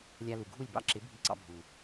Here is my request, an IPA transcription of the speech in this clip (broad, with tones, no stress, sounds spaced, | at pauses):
lʲ a˧ l u˨ ɡʱ u˦˨ lʲ b ɑ̰˦ ǁ ɪ˨˦ bʱ i˧ ǀ ɑ̰˧ bʱ u˨